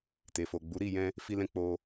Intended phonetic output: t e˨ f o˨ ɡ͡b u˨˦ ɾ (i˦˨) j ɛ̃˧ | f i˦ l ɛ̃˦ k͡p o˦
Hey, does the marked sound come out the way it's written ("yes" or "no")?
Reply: yes